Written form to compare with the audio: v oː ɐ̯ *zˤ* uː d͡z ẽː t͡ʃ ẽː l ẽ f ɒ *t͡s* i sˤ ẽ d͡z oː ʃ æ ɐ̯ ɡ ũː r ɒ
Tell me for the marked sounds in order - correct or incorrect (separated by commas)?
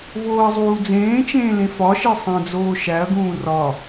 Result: correct, incorrect